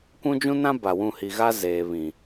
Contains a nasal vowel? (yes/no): yes